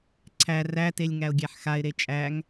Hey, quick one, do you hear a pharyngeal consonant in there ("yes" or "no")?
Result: yes